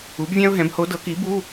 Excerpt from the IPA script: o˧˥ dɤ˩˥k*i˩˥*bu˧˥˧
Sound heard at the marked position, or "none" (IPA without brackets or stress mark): i˩˥